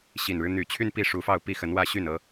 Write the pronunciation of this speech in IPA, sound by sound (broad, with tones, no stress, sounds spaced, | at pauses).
ɕ i˨˩ n ɻ ɻ̩˦ n̪ y˨˩ t͡ɕʰ y˥˧ n p i˥˩ ʂ u˧˥ f ɑ˥˧ ʊ̯ p i˥˩ x ə˧˥ n w ä˥˧ ɕ y˥˩ n ɤ˥